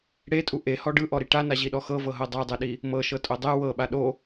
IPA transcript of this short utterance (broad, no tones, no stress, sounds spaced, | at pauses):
ɽ e tʼ u ʔ e h ɔ ɖ ɯ ʔ ɔ ɾ i ʈ a n a ʑ i ɗ ɔ x ɤ v ɤ ɦ ɤ dˤ a dˤ ɛ ɗ i | m ɤ ʃ ɤ tʼ o dˤ ɛ w ɤ ɓ a ɗ o